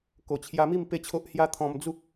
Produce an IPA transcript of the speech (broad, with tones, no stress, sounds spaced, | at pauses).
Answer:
k o˨˩ t͡ɕʰ j a˧ m i˥˧ m p e˥˧ t͡ɕʰ o˦ ʔ h j a˦ t̪ʰ ɔ̃˧ m d͡z u˦ k̚